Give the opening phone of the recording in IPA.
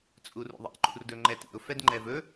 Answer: t͡sʼ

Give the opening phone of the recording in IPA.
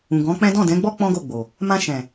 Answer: ũ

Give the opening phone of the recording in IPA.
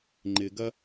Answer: ŋ͡ǃ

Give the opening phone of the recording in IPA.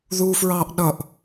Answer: ð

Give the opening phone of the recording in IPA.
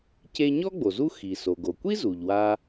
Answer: c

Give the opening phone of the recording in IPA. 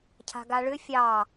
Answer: cʰ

